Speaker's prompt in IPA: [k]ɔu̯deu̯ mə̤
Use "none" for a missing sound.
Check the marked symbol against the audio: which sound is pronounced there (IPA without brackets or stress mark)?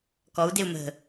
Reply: k